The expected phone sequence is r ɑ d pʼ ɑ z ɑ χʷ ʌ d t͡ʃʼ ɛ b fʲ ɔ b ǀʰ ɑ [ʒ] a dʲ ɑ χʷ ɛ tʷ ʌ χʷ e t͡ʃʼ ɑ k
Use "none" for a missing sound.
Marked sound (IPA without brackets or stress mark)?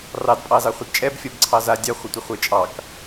z